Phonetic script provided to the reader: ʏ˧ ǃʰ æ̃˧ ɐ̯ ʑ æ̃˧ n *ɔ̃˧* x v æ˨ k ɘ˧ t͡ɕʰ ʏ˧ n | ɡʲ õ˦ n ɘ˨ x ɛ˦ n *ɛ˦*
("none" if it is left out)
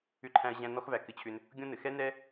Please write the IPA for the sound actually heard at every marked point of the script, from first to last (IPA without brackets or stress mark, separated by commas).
ɔ˧, ɛ˦